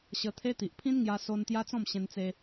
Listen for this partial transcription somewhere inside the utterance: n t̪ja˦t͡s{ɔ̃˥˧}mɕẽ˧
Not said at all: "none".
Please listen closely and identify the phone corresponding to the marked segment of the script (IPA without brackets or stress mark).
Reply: ɔ̃˥˧